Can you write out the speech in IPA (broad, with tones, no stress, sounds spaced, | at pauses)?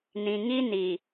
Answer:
n ĩ˨ ŋ i˦ n i˨